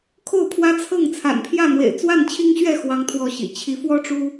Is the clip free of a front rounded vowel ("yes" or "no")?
yes